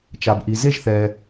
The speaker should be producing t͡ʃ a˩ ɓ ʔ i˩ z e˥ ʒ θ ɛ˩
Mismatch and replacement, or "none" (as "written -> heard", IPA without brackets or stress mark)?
ɓ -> b